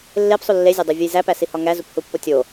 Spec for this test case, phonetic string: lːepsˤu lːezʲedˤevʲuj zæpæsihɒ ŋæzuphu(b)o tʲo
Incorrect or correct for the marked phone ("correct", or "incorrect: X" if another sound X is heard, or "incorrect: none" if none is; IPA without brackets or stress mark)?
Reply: incorrect: pː